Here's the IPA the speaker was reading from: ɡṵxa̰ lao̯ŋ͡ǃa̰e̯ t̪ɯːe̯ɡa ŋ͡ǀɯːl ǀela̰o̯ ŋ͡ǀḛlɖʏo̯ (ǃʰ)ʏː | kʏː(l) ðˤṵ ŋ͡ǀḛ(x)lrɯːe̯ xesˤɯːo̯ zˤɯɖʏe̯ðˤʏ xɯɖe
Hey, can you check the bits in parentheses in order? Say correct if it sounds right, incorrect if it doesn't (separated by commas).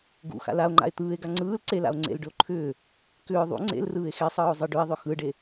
correct, incorrect, incorrect